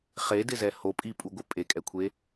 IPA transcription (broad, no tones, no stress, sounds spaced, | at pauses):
χ e d ɪ z ɛ h o pʼ i pʼ u ɡʷ ɪ pʼ e kʼ ɛ kʷʰ e